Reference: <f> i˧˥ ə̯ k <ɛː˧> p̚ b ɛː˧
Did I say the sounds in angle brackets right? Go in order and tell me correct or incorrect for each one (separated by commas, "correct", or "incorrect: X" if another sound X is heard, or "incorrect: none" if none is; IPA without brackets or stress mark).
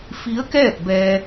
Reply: correct, incorrect: ɛː˥˨